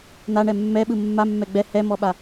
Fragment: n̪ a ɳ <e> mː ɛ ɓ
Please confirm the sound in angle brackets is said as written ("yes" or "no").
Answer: no